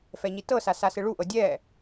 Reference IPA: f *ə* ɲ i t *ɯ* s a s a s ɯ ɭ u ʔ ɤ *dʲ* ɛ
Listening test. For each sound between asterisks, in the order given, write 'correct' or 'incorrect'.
incorrect, incorrect, correct

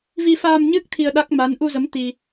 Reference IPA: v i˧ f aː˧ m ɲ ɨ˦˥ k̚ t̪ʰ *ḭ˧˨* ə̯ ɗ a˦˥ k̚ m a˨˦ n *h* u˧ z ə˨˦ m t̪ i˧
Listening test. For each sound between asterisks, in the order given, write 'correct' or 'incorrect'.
incorrect, incorrect

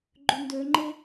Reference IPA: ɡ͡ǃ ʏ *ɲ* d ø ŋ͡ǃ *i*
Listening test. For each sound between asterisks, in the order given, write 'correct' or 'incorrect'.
incorrect, incorrect

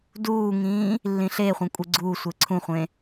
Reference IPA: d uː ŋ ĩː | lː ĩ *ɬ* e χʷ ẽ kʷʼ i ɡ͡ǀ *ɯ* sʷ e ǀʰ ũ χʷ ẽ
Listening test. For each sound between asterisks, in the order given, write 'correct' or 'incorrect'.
correct, incorrect

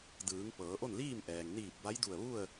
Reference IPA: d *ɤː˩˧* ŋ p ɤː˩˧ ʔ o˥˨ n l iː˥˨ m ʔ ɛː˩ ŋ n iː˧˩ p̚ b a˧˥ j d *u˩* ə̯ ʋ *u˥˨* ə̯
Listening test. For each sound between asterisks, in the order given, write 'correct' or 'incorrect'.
incorrect, incorrect, correct

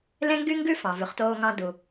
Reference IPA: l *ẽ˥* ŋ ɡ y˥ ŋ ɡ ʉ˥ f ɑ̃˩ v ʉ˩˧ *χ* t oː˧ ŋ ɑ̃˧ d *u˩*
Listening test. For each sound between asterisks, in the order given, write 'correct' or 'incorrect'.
correct, correct, correct

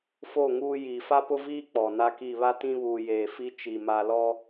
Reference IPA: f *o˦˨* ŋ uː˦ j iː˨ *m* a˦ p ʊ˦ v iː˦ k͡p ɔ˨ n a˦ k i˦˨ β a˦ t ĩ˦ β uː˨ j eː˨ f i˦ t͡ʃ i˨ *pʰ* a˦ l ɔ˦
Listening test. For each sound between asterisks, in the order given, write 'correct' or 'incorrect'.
correct, incorrect, incorrect

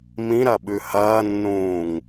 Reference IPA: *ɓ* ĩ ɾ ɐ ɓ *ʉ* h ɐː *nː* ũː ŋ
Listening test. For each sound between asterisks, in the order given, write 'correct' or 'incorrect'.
incorrect, correct, correct

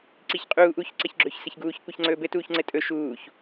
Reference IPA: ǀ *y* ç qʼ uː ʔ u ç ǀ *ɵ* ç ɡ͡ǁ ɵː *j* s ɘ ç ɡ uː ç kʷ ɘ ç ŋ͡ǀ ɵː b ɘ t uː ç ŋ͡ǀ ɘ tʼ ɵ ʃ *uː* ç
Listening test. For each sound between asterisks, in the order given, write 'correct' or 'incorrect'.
incorrect, incorrect, incorrect, correct

